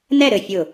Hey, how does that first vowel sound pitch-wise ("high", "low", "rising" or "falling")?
falling